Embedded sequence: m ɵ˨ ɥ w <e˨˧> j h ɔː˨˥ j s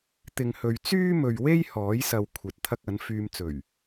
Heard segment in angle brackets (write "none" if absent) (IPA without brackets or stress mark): e˥